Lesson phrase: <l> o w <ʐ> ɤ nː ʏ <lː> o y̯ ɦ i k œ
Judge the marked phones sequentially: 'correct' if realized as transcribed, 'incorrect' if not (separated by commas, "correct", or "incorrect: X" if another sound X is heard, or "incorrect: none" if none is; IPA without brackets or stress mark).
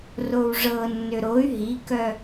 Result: incorrect: r, correct, incorrect: ɾ